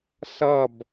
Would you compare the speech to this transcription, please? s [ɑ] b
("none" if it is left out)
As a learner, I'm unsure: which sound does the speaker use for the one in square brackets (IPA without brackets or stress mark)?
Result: ʌ